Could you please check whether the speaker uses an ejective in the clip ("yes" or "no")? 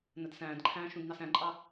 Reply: yes